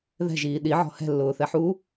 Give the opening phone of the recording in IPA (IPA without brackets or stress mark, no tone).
ð